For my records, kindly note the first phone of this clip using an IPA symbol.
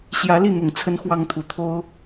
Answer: ɕ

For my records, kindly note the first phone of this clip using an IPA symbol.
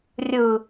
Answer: rʲ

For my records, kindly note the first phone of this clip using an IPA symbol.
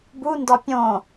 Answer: b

